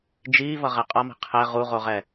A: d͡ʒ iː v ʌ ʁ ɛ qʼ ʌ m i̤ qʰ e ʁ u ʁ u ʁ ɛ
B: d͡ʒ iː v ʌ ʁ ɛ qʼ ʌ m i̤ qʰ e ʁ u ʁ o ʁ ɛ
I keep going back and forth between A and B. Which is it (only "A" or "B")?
B